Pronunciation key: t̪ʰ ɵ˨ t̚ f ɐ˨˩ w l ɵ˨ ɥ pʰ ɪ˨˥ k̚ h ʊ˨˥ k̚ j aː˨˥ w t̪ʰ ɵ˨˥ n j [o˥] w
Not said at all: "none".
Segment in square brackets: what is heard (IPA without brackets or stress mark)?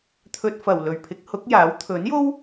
o˥